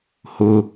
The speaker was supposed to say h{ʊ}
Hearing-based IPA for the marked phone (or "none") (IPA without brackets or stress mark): ʊ